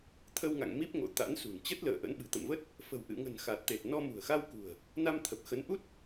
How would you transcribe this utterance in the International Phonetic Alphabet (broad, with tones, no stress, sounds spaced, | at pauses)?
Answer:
t̪ʰ ə˧ w ŋ a̰˧˨ ŋ m i˦˥ p̚ ŋ o̰˧˨ t̪ a̰˧˥ n s ṳ˨˩ n t͡ɕ ə˦˥ t̚ l ə̰ː˧˨ ʔ ə̰˧˥ n ɓ ɨ̤˨˩ t̪ ə̰˧˨ m v ə˦˥ t̚ | f ə̤˨˩ w ʔ ɨ̰˧˨ ŋ ə̤˨˩ n x a˨˩ t̚ t̪ e˨˩ t̚ n ɔ˧ m ṳ˨˩ ə̯ x a˧ w k ṳ˨˩ ə̯ | n a˧ m t̪ʰ ə˨˩ p̚ x ə˨˦ n ʔ u˦˥ t̚